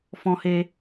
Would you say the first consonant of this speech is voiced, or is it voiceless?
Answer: voiceless